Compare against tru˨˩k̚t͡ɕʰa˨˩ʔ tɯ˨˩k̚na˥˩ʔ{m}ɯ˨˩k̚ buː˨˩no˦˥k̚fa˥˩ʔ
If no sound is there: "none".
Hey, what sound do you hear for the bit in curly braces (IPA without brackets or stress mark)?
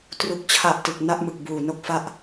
m